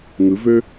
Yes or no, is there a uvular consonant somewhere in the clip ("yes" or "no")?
no